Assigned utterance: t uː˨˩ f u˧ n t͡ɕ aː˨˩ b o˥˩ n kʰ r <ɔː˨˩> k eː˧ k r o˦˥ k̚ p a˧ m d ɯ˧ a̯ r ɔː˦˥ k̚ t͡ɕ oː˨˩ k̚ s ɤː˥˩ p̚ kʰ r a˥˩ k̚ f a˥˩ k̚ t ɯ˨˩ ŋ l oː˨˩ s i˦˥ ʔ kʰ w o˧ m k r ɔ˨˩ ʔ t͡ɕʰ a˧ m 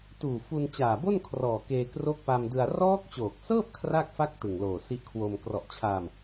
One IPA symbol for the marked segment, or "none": ɔː˨˩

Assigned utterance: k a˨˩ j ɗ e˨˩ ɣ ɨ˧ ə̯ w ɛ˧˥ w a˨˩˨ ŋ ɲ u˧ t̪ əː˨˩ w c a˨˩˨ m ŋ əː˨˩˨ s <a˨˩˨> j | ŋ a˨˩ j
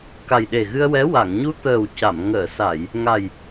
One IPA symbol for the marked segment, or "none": a˨˩˨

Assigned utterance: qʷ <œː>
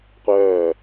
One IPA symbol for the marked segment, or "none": œː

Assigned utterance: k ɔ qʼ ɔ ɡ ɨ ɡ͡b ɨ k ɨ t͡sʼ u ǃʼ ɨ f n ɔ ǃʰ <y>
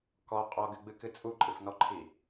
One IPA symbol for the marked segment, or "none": i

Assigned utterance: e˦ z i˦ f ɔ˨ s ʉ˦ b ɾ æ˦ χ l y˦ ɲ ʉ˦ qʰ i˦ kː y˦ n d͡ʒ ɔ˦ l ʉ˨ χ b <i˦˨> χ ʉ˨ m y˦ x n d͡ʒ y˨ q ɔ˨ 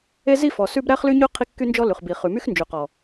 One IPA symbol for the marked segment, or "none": i˨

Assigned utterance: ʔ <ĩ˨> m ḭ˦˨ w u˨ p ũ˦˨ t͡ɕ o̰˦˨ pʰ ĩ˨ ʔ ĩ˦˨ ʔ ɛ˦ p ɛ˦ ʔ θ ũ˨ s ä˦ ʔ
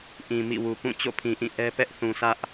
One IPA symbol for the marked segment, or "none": ĩ˨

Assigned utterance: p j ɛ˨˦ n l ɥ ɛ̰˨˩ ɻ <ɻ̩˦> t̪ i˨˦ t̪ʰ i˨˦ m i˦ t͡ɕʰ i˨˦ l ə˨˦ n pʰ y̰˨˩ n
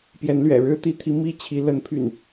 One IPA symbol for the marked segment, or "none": ɻ̩˦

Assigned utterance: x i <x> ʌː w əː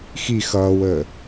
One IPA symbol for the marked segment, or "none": x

